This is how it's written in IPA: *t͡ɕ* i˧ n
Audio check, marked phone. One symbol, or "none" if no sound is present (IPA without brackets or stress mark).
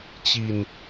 t͡ɕ